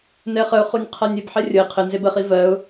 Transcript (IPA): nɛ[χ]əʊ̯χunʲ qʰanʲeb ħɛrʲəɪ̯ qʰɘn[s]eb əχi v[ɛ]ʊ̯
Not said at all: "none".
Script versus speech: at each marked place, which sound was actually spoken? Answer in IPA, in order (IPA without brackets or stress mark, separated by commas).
χ, z, ɜ